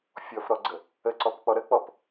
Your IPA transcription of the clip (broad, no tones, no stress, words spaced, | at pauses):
fʲɔfɾɔɡ͡ǀə | əǀɔpk͡pɔ ɾək͡pɔp